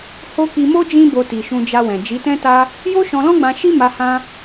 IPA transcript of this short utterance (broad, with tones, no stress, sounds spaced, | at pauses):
h o˧ k i˧ m o˦ d͡ʒ ĩ˦ b o˧ t i˨ ʃ ũ˧ d͡ʒ a˧ w ɛ̃˨ d͡ʒ i˨˦ t ɛ̃˦ t a˦ | j o˦ ʃ ɔ̃˧ l ɔ̃˦ ɡ͡b ã˧ ʃ i˦ m a˧ h ã˦